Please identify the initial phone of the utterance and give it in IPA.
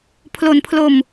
pʰ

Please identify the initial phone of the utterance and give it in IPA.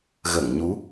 ɣ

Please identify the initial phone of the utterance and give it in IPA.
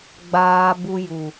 ɡ͡b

